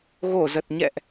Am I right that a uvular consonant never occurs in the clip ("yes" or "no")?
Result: yes